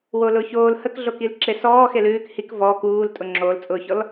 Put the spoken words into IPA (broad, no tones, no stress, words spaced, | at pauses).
wolʊːçoːl həkɮokil ǁesɔː xelʉːk hik vɔːk uːl tʼʊŋ͡ǁoːlt͡sʼʊːçɔl